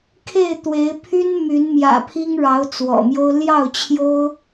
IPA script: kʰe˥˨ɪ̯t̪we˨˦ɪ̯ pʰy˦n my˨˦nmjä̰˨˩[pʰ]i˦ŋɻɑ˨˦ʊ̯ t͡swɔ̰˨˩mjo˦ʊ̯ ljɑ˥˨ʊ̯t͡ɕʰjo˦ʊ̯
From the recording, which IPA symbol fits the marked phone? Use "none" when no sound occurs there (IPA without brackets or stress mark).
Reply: pʰ